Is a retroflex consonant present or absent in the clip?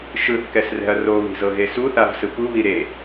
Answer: absent